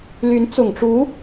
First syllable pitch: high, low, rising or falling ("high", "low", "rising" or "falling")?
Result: rising